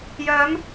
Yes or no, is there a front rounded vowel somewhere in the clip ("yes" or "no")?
yes